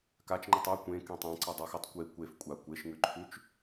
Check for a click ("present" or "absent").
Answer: present